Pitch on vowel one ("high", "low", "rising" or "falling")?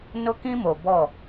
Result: high